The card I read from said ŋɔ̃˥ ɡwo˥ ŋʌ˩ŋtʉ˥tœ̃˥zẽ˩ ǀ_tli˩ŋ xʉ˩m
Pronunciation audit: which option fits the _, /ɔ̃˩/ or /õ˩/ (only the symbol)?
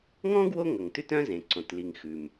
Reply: õ˩